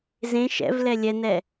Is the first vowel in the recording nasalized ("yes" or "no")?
yes